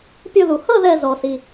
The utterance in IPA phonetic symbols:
pʲ ɤ˥˧ ð u˨˩ h ɤ˥˧ ð ɛ˥˧ z ɔ˨˩ s i˨˩

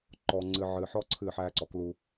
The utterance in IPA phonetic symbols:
ǃ ɔ˨ ŋ͡ǀ ɨ˨ ʕ ɨ˨ ħ ɔ˦ ǀʰ ɨ˦˨ ħ æ˦ ǀ ɔ˨ k l u˦

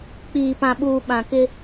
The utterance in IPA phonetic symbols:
k͡p iː˨ p ã˨ ɓ uː˨ ɓ ã˨ k ɪ˦

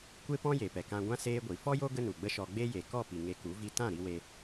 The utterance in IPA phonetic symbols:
kʷ e˦ p ɔ̃˦ j e˨ p ɛ˨ k ã˧ ɡʷ ã˦ s eː˦ ɡʷ i˨ f ɔ˦ j o˦ ɡ ə˦ n u˨ ɡ͡b ə˦ ʃ ɔ˧ ɡ͡b e˦ j e˨ k ɔ˦˨ p i˨ ŋ e˧ k u˨˦ v i˧ t ã˦˨ ɾ i˧ w e˧

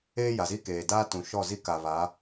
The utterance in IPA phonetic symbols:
eː˦ j a˨ z i˦ k eː˨ d aː˦ t ũ˨ ʃ ɔ˦˨ z i˦ k a˨ β a˨˦

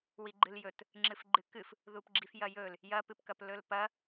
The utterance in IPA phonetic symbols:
w i ɡ͡ǃ ɨ l j ɵ t | ŋ͡ǁ ɨ f ɡ͡ǃ ɨ k ɨ f | ð u p ɡ͡ǁ i f j ɐ j ɵ l | j ɐ p ɨ p k ɐ p l ɵ l p ɐ

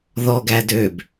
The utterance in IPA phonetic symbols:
ð ɔ ɡ æ d ø b

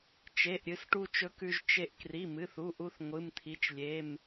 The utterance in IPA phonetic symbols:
t͡ʃ e˩˧˩ ʔ ɾʲ ɨ˧ s ʈ u˧ t͡ʃ ɵ˧ k ʉ˧ ʒ t͡ʃ e˧ ʔ k r i˩˧˩ m ɨ˩˧˩ θ u˩˧˩ ʔ u˧ θ ŋʷ ɨ˩˧˩ m t̪ʰ i˩˧˩ t͡ʃ lʲ e˩˧˩ m

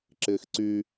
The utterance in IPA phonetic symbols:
ǁ ɪː x ǀ y

